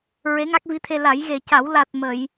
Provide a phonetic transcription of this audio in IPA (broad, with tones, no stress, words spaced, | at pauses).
ɹe˧˥ŋa˦˥k̚vi˧˥t̪ʰe˧ la˨˩˦jɣe˨˩ca˨˩˦w la˨˩t̚ mə˨˩˨j